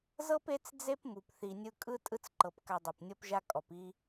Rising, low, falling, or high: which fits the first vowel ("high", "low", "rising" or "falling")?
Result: high